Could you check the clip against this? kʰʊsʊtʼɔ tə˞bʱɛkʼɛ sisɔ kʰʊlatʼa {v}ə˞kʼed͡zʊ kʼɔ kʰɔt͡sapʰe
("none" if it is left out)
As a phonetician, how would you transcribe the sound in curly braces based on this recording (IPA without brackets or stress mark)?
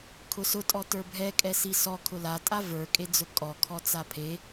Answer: v